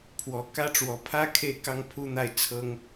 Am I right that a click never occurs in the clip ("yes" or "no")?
yes